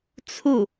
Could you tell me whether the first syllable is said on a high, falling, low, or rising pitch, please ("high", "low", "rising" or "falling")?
falling